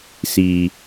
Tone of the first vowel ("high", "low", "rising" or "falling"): low